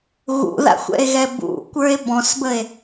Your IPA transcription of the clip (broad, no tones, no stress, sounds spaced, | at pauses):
ɣ ṵ ð a̰ xʷ ɛ̰ e̯ ɣ ɛ b ṵ kʷ ə˞ e̯ b ɔ̃ s b ə e̯